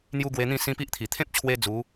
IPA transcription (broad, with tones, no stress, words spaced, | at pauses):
n̪ju˧ ɡwe˧n̪ĩ˥˧sĩ˦ pi˦ʔt̪ʰi˨˩ t̪ʰẽ˦p̚t͡ɕʰwe˧ d͡zu˨˦